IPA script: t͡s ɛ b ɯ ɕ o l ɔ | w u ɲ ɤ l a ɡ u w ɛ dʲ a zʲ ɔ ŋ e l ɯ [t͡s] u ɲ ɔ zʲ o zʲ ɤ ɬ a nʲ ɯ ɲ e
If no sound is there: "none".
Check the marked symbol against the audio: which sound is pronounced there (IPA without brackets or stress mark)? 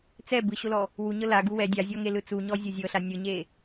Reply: t͡s